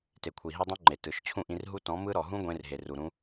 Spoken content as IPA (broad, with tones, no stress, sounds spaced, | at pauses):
t e˨ kʷʰ i˨ ɦ e˦ dˤ ũ˦ ŋ͡ǃ e˨ t ɯ˨ ʃ t͡ɕʰ ũ˦˨ ʔ ĩ˧ r ɦ u˦ t ɔ̃˨˦ m ɯ˦ ɾ ɔ˨ ɦ ũ˦ ɡʷ ẽ˧ r ɦ e˨ r u˨ ɾ ũ˧